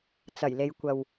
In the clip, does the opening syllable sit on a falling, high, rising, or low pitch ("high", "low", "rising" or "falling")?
low